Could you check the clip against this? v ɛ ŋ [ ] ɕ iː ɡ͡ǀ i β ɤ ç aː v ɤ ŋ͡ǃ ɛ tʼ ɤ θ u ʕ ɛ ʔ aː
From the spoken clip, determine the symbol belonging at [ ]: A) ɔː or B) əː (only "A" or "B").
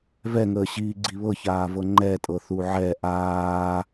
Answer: B